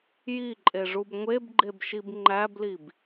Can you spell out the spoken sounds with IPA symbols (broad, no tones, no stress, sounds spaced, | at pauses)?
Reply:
j i ǃʼ e ʐ u b ŋʷ e b ɡ͡ǃ e b ʃ i b ŋ͡ǃ æ b l i b